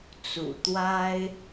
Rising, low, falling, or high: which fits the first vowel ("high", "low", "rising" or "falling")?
low